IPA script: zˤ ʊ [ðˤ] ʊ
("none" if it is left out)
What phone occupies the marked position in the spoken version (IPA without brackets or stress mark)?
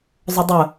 dˤ